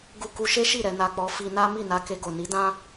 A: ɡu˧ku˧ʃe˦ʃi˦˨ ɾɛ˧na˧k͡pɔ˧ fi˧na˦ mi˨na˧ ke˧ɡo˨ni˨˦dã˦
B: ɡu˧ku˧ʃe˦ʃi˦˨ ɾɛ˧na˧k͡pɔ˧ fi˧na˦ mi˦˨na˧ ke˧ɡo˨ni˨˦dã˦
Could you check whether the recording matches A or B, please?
B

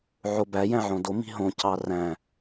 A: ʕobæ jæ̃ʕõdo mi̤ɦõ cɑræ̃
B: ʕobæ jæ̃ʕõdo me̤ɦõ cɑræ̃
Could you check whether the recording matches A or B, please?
A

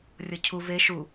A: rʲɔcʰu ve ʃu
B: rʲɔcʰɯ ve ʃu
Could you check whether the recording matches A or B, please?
A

